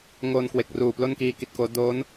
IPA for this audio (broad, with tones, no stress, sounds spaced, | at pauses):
ŋ oː˧ n k w e˨˩ k̚ r uː˨˩ p l o˥˩ n k iː˧ k i˨˩ t̚ k oː˦˥ d oː˦˥ n